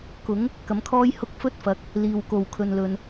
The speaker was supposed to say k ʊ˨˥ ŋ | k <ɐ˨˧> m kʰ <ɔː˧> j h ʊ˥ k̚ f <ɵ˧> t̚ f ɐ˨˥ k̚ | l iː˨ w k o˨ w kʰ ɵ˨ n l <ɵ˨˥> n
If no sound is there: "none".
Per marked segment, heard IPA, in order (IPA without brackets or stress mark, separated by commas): ɐ˨˥, ɔː˥, ɵ˥, ɵ˨